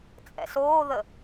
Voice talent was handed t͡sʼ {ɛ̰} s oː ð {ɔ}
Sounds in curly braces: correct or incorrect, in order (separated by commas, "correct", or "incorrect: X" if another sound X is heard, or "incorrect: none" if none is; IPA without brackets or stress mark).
correct, incorrect: ə